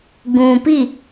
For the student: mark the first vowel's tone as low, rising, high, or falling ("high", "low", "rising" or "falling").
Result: low